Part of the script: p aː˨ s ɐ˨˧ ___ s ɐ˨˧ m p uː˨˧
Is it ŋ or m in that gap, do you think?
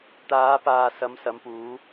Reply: m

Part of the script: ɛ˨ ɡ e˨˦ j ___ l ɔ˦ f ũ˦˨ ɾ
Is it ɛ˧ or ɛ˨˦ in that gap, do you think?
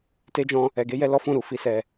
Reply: ɛ˧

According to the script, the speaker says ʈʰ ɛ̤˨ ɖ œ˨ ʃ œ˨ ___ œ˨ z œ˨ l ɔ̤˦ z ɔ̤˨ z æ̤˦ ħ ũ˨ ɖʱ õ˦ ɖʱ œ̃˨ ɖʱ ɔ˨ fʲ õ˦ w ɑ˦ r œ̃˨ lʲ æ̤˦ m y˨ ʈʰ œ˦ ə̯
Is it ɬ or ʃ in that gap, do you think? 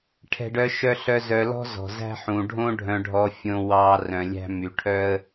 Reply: ɬ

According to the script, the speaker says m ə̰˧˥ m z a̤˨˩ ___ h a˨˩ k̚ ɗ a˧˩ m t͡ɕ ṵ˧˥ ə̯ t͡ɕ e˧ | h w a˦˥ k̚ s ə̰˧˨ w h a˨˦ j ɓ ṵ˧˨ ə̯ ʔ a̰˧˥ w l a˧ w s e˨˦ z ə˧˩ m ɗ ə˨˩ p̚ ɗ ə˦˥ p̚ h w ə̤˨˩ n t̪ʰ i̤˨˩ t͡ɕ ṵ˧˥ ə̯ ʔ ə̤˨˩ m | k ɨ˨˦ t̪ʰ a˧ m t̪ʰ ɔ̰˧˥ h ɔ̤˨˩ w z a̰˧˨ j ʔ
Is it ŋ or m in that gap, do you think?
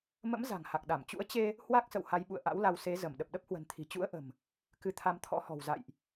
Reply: ŋ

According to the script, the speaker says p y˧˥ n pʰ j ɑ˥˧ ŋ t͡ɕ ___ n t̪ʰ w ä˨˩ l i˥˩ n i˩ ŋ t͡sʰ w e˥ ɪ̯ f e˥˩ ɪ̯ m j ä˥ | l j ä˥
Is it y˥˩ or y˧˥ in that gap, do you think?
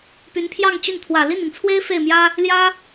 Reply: y˥˩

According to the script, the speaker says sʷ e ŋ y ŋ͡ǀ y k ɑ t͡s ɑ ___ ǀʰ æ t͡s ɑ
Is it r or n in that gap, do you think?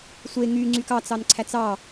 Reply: n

